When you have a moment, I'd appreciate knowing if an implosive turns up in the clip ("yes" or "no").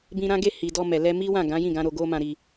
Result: no